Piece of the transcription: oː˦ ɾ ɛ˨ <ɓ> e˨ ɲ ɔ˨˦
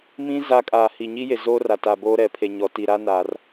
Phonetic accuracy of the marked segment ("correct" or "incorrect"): incorrect